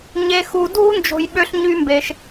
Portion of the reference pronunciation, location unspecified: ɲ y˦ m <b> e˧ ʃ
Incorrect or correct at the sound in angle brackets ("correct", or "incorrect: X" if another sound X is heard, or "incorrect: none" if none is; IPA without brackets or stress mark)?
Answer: correct